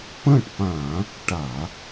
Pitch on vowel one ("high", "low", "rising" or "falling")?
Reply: falling